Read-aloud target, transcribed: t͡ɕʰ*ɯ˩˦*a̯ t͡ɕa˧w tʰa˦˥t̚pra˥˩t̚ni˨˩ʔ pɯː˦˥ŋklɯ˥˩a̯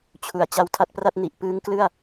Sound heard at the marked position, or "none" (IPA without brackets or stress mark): u˩˦